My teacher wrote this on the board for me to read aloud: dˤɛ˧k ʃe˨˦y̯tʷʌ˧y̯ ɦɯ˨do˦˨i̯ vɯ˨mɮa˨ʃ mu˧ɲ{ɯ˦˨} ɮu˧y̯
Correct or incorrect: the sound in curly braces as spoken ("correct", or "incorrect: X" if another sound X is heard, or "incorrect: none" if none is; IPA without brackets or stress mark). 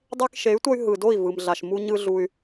incorrect: ɯ˧